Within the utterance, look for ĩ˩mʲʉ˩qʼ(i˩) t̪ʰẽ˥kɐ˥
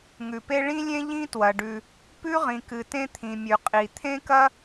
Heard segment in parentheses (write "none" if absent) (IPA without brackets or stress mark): i˩